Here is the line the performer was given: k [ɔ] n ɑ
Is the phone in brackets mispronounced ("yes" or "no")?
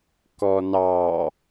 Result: no